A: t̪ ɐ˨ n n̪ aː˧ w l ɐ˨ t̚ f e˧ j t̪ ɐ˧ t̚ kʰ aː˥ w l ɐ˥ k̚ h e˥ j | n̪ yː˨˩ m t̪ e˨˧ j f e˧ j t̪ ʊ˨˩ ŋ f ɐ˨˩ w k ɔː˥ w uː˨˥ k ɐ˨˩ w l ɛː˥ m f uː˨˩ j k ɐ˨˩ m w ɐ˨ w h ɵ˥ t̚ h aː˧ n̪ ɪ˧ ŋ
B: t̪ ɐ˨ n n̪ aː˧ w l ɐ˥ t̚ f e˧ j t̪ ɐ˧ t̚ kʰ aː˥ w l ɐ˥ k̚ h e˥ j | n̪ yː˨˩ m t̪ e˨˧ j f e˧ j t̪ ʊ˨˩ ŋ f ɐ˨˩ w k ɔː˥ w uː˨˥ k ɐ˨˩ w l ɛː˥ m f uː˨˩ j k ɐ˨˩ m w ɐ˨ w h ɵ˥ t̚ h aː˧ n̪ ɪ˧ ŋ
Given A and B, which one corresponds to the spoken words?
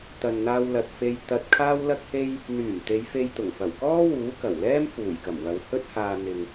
A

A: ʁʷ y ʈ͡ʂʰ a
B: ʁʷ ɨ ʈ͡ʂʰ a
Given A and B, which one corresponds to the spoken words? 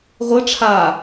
B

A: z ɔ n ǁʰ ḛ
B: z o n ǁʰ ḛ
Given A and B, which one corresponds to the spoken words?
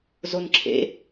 B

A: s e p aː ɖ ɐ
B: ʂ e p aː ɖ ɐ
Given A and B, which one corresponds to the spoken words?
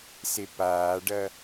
A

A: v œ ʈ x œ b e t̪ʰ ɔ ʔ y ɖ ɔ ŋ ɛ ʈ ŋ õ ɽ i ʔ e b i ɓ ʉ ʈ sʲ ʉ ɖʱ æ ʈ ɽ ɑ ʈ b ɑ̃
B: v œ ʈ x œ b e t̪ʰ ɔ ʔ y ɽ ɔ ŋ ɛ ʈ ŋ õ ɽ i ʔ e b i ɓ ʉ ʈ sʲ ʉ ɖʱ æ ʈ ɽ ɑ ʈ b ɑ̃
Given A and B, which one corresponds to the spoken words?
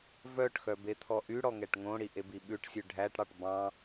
B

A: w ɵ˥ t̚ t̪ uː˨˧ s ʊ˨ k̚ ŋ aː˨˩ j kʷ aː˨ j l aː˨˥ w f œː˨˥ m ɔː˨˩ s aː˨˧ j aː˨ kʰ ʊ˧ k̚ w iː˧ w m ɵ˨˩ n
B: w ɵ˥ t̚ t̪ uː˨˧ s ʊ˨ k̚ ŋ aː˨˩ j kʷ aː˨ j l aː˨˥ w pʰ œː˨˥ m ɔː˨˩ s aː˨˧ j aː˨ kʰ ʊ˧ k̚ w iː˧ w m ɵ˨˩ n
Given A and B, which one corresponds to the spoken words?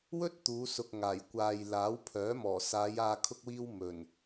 B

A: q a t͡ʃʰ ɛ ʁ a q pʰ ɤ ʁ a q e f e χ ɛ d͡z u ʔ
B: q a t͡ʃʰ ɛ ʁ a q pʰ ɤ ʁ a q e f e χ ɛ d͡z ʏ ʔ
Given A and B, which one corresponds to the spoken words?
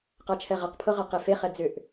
B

